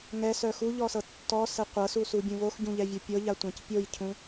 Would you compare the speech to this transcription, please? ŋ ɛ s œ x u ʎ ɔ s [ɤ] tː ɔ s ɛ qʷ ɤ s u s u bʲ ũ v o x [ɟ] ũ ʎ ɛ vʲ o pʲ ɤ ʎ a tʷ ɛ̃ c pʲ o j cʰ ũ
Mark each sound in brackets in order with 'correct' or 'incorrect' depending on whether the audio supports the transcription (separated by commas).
correct, correct